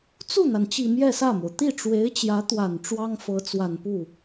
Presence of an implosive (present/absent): absent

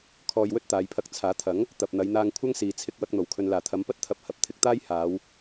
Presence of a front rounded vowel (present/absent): absent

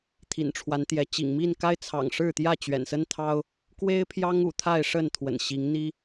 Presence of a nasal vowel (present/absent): absent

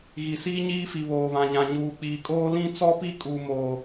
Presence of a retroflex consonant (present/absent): absent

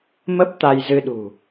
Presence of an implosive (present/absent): present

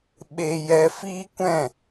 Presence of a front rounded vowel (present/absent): absent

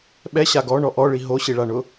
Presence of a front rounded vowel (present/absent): absent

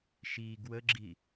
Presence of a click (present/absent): present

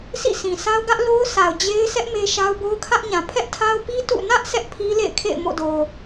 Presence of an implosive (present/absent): absent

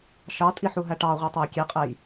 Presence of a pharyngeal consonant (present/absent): present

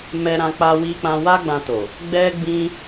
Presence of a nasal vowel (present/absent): present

